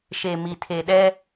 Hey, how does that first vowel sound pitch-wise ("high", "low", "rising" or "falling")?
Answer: low